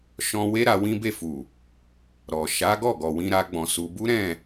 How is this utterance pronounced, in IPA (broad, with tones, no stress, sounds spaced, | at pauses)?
ʃ ɔ̃˧ w e˦ ɾ a˧ w ĩ˦ b e˦˨ f u˨ | ɾ ɔ˨ ʃ a˨˦ ɡ ɔ˦˨ ɡ ɔ˨ w ĩ˧ ɾ a˦ ɡ͡b ɔ̃˧ s u˧ b u˦ ɾ ɛ̃˦˨